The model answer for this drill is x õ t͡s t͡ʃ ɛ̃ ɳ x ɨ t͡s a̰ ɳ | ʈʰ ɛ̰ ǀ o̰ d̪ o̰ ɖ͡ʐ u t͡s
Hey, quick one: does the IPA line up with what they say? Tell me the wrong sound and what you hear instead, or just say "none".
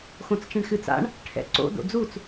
ɖ͡ʐ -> d͡z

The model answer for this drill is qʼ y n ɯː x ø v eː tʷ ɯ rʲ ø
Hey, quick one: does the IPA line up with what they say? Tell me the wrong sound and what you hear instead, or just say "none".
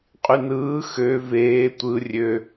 none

